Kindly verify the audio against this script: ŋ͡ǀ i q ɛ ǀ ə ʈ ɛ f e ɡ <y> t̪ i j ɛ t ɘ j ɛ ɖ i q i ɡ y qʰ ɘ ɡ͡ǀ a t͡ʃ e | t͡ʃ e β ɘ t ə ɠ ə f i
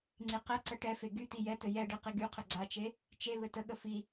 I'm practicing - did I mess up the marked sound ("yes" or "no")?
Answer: no